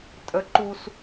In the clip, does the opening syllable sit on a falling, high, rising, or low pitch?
rising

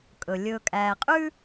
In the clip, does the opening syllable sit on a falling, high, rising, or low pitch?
low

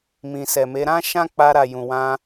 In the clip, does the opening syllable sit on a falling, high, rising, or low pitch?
low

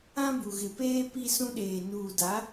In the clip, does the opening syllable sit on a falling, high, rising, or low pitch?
high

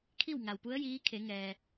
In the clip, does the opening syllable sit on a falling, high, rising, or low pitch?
falling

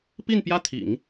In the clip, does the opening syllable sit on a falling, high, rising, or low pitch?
falling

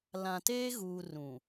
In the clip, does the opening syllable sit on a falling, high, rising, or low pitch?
low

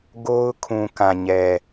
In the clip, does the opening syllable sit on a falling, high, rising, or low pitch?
high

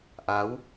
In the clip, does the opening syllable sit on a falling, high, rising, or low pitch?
rising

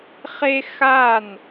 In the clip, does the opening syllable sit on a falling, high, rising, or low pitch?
high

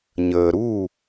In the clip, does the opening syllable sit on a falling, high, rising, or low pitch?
low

